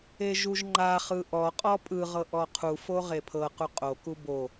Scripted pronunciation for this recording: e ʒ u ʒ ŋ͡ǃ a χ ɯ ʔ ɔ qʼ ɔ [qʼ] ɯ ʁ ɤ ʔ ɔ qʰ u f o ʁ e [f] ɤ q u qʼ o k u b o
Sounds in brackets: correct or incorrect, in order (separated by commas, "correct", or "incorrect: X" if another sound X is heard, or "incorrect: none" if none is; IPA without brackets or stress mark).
incorrect: pʼ, incorrect: pʰ